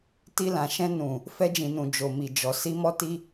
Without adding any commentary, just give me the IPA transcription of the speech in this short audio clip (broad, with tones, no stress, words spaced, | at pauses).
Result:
ti˧lã˨ʃɛ̃˧ nũ˨ | fɛ˧d͡ʒĩ˨nũ˨ d͡ʒo˨mi˨d͡ʒɔ˨ si˧mɔ˦ti˦